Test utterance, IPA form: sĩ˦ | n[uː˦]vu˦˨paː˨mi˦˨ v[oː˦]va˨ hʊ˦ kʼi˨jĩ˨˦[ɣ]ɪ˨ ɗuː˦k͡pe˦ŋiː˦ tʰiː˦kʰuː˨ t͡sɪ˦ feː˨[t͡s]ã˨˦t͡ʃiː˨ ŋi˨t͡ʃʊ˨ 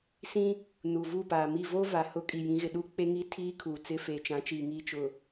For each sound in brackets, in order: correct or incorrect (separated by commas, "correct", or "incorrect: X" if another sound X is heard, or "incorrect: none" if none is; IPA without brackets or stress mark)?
incorrect: uː˨, correct, correct, incorrect: t͡ʃ